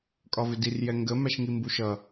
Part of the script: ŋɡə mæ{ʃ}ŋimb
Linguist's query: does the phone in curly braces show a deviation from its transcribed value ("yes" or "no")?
no